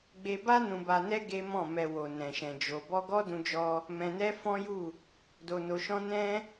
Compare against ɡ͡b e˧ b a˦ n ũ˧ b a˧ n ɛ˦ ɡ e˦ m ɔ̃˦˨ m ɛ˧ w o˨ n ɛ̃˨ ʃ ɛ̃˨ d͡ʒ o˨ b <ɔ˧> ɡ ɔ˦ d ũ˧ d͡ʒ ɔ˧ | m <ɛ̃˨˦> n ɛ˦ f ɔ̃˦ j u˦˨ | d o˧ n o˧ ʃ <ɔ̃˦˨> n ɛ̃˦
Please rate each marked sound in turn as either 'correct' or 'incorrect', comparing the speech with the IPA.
correct, incorrect, incorrect

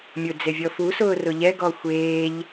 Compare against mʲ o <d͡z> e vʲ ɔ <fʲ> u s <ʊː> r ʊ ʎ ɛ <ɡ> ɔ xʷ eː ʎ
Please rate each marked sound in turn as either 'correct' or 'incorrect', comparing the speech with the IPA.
correct, incorrect, correct, correct

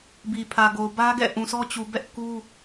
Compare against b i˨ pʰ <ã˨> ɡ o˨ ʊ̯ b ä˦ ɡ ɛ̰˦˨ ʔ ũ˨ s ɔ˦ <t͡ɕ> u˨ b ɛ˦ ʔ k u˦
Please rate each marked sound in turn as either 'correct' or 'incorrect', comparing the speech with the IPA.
incorrect, correct

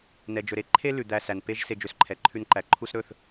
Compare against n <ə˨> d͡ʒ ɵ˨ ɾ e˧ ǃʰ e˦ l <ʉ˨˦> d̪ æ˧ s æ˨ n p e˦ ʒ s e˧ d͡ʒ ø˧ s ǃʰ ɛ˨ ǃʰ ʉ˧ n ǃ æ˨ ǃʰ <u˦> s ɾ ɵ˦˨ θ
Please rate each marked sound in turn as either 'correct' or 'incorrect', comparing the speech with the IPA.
incorrect, incorrect, correct

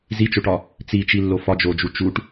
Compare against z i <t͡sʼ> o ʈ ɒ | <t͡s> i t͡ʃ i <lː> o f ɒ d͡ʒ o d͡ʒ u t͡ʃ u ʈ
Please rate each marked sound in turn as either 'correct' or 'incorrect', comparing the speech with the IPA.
incorrect, correct, correct

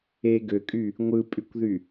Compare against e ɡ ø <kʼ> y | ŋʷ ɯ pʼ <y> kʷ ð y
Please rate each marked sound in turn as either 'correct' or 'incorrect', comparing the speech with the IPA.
correct, correct

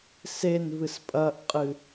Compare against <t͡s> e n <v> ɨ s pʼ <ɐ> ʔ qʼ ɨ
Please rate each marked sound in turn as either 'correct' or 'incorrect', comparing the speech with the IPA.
incorrect, correct, correct

